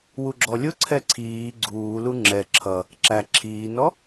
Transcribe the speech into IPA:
w u ɡ͡ǁ ɔ lʲ ʊ ǀʰ ɛ ǀʰ iː ɡ͡ǀ uː l u ŋ͡ǁ ɛ ǁʰ ʌ | ǁ æ ǁʰ iː n ɔ

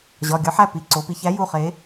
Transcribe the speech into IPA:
ʑ ɒ˩˧˩ ɡʲ ɒ˨˥ ħ æ˩˧˩ p i˩˧˩ ǀ o˩˧ p i˩˧ ç æ˨˥ j u˩˧˩ χ e˩˧

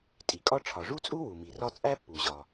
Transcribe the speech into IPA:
tʼ i˩ kʼ ɒ˥ ʈ͡ʂʰ ɒ˩ ʐ u˥ t͡sʼ u˥ w u˩ m i˩ r ɒ˥ t͡sʼ æ˥ pː u˩ ʑ ɒ˩

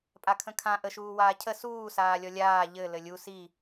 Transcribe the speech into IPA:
pʼ a kʰ ə̃ kʰ ã ʔ ə ʃ uː w aː cʰ ə s uː s aː lʲ ɔ lʲ aː ʎ ɘ l ɘ lʲ u s i

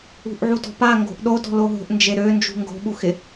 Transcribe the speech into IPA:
ṳ ʔ ʕ u d ɔ̤ p a ŋ ɡ o̤ ʔ ɗ o d ɔ̤ l o ɦ o̤ ʔ n d͡ʒ e ɾ ø n d͡ʒ ṳ ŋ ɡ o̤ ɓ u x ɪ

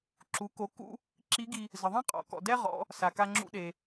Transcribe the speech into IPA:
ǁ u˩˧ k o˩˧ k ṵ˧ | ǁ i˧˥ ɡ i˧ | z ə˩ ðˤ ẽ˥ qʼ ɔ̰˩˧ k ɔ̰˩ d ɛ˥ ʁ ɔ̰˩˧ | s a˩ k a˧ ŋ͡ǁ ṵ˧ ɗ e˩

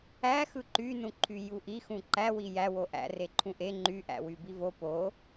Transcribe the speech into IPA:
æ x ɯ ǃ y n ũ ǃʰ y j u ʔ i x ũ ǃ æ w i j æ w o ʔ æ̰ r e ǃʰ ũ ʔ e ŋ͡ǃ y ʔ æ̰ w y b i v o p o

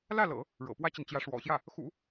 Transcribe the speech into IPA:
l ä˥˩ l ɤ̰˨˩˦ | ɻ ɤ̰˨˩ p w ä˥ t͡ɕ i˨ n t͡ɕ j ä˧˥ ʂ w ɔ̰˨˩ ɕ j ä˥˩ | x ṵ˨˩˦

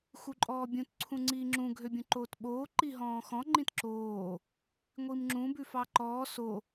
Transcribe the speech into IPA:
x u ǃʼ ɔː bʲ ũ t ǀʰ ũ ŋ͡ǀ iː ŋ͡ǁ ũ ɡʱ ø bʲ ũ ǃ oː t ɓ oː ǃ i ɦ ɔ̃ː x ɔ̃ ŋ͡ǃ ĩ t ǁ oː | ŋʷ i m ŋ͡ǁ ũ b ʉ f ɑ ǃ ɔː s o

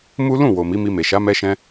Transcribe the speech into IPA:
m u˦ l ũ˦˨ w o˨ m i˨˦ m i˧ m e˨ ʃ a˨˦ m ɛ˧ ʃ ɛ̃˧

